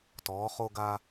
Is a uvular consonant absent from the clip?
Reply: no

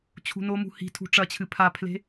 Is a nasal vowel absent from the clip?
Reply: yes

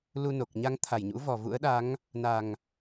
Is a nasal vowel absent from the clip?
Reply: yes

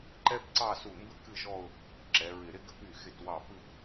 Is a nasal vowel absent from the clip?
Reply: yes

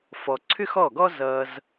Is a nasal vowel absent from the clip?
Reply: yes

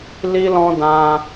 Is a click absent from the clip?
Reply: yes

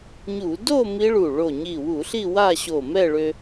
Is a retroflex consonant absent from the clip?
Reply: no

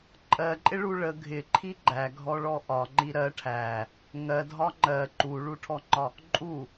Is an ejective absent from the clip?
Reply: no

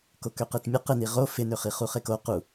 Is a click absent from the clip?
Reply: yes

